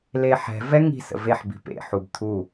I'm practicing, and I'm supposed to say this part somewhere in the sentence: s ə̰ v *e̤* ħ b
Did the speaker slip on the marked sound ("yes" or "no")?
yes